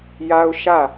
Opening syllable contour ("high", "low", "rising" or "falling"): high